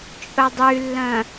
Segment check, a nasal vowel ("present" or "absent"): present